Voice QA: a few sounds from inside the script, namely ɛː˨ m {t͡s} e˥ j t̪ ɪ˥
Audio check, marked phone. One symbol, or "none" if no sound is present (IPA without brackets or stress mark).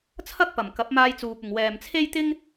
t͡sʰ